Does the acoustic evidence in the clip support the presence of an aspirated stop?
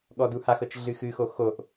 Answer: no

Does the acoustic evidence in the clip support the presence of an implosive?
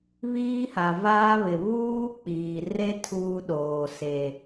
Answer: yes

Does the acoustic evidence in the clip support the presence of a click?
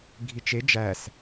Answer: no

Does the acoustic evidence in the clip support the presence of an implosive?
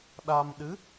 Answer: yes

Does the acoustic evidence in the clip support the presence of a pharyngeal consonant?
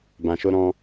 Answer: no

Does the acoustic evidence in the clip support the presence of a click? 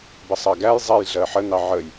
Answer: no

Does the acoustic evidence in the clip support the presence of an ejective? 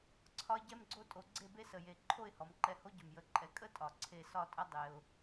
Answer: yes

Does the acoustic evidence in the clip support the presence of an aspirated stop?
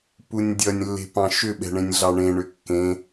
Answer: no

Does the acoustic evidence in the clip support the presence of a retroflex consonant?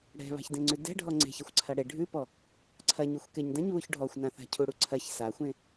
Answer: yes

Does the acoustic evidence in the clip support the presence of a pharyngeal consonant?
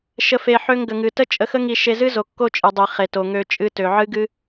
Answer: yes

